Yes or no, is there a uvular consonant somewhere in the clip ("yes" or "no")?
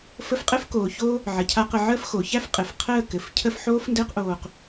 yes